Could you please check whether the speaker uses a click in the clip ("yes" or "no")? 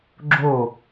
yes